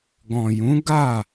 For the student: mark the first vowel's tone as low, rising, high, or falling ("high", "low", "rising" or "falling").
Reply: low